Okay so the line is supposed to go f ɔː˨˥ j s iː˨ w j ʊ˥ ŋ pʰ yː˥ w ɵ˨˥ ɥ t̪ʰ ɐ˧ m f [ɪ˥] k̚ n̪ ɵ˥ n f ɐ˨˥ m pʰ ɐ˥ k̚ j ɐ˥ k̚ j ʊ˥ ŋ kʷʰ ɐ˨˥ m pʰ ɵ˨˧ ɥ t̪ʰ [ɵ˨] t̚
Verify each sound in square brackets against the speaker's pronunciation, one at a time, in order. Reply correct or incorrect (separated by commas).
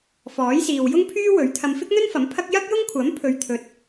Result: correct, correct